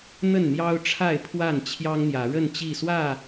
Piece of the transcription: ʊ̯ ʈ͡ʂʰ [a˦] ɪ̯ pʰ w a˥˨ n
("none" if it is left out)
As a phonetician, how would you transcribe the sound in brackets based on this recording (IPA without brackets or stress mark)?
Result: a˥˨